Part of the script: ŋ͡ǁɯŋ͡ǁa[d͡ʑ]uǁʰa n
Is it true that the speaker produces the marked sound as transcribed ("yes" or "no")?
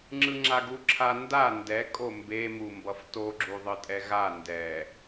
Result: no